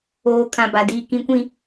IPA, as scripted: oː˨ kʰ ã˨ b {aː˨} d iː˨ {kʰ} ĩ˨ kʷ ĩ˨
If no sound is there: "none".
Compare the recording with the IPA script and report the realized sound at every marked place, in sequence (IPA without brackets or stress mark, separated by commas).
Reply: a˨, k